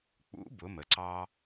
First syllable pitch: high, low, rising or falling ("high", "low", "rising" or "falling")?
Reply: rising